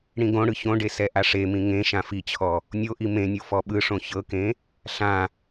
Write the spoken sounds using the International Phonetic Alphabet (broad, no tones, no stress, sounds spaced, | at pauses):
ɽ ĩ ɡ õ ɽ ɯ ç õ ɖ e s ɛ ʔ a ʂ e m ĩ ŋ ẽ ʃ ã f i t͡ɕʰ ɔ | nʲ o ʔ i m ẽ nʲ o f ɔ ɓ ɯ ʂ õ ç ɤ k ẽ | ɬ ã